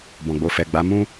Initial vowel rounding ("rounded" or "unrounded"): rounded